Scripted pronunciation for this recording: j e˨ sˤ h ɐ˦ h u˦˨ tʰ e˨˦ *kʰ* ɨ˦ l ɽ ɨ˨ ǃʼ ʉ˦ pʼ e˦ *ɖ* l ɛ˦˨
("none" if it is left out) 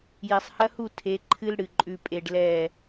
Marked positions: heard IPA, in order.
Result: ǃʰ, ɖ

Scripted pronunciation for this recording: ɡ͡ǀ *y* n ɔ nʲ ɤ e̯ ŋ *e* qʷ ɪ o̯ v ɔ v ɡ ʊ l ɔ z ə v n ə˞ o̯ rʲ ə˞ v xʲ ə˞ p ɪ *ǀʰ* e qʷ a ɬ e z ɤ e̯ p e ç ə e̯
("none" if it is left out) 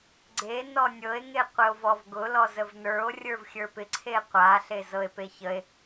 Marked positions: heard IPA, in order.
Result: e, e, ǀʰ

